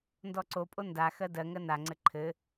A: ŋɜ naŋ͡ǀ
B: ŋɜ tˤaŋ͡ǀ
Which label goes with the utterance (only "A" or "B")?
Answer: A